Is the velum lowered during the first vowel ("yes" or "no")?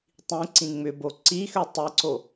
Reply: yes